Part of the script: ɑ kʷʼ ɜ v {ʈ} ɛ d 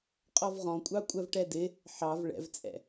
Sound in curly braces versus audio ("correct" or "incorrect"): correct